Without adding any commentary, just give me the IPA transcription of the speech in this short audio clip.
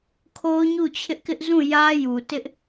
kʰo˦ʊ̯ɲu˦˨t͡ɕʰɪ˦ʔkɪ˦ʔ zũ˦˨jä˦ju˨ tɪ˦ʔ

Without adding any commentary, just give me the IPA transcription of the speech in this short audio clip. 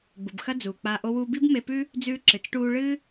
ɡ͡bu˩bxɐ˥d͡zuː˩k͡paː˧ ʔo˧wuː˧bi˥b me˧pʉː˥ | d͡zʉː˧ǁɨ˩t͡sʈuː˧ ɭɨː˥

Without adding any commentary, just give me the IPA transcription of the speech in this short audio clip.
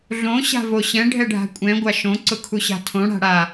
ɮõ ɕa̤voɕɛ̃ ɖʱɛɖʱa̤kʷʼɛ̃ ɡʷaʃõ ǀʊkʰuɕa̤tʰõ ɽa̤ɽa

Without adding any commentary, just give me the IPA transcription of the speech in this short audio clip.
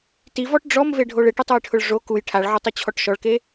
tivɔʈ ɖ͡ʐɔmveɖʱoɭ ɪʈɪtˤojʈʰʊɭ ʐo kuj ʈʰaɭʕotˤʊt͡ɕʰɔʈ ʃɔɭke

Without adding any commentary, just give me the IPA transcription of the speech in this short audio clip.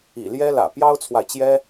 ḭ˨˩ljɛ˥lä̰˨˩ pjɑ˥ʊ̯t͡sʰwa˨ɪ̯t͡ɕjɛ˥

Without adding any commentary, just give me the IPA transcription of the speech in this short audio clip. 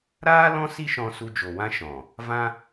ɾaː˦lɔ̃˦ si˦ʃɔ̃˧ su˧d͡ʒo˨wã˦ ʃɔ̃˨ | vã˦

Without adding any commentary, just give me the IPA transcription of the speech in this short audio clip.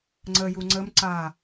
ŋ͡ǀə juŋ͡ǀəm ǀa

